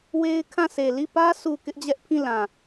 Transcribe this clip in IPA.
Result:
w e˦ ɪ̯ kʰ ã˦˨ s e˨ l i˦˨ p ä˦ sʰ u˨ k ɪ˦ ʔ d͡ʑ ɛ˦ ʔ pʰ ĩ˦˨ l ã˨

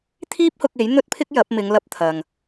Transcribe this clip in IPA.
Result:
t̪ʰ iː˥ p̚ h ʊ˧ k̚ e˨˥ j n̪ ɵ˥ t̚ pʰ ɪ˥ k̚ j ɐ˨˥ p̚ m ɪ˨˧ ŋ l ɐ˧ p̚ t̪ʰ ɐ˨ ŋ

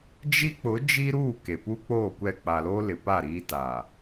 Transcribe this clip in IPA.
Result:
d͡ʒ i˦ k͡p ʊ˨˦ d͡ʒ i˦ ɾ uː˦˨ k e˨ p u˦ k͡p oː˦˨ kʷ ɛ˦˨ k͡p a˨ l oː˦ l ɪ˨ p a˦˨ ɾ iː˦ t a˨

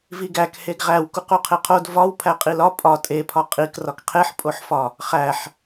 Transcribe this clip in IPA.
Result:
v i ɡ æ k h e ɡ ʁ æ w k u q u qʰ e qʰ o d v ɒ w pʰ æ qʼ i l ɒ pʼ ɒ tʼ e pʰ ɒ qʼ i k r ɒ k qʰ e ħ pʼ o ħ f ɒ | χ æ ħ

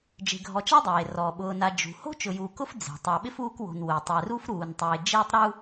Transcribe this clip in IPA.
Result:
d͡ʒ e̤˨ ɡʱ ɔ˨ t͡ʃ a˥ dˤ eː˩ r ɔ˩ ɓ ʊː˨ n a˨ d͡ʒ ṳ˩ h o̤˥ t͡ʃ ʊ˨ j uː˨ k ʊ˥ f d͡z e̤˩ tˤ a˨ ɓ ɪ˥ f uː˦ k w o̤˨ n w ʊː˩ tˤ ɛ˨ r u˥ f ɾ uː˨ n tˤ eː˨ d͡ʒ eː˥ tˤ ɾ u˥

